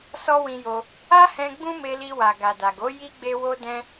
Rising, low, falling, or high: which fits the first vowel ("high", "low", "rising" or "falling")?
high